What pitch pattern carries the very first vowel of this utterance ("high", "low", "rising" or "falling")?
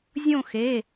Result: falling